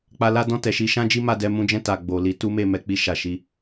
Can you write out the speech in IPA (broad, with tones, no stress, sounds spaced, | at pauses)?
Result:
k͡p a˧ l a˦ d ɔ̃˦˨ t ɛ˨ ʃ i˨˦ ʃ ã˦ d͡ʒ i˦ m a˧ d ɛ˧ m ũ˧ d͡ʒ ɛ̃˧ t a˨ ɡ͡b o˨ l i˨˦ t u˦ m e˦˨ m ɛ˨˦ k͡p i˧ ʃ a˨ ʃ i˨˦